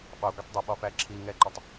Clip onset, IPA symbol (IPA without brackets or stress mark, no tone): ɓ